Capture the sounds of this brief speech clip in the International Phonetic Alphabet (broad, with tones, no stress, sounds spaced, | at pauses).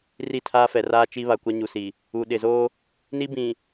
r i˦˨ tʰ aː˦ f ɛ˨ r aː˦ t͡ʃ i˦ β a˨ kʷ a˦ ɲ u˨ s i˨ | u˨ ɗ ɪ˨ z o˦ | n i˦ b ĩ˨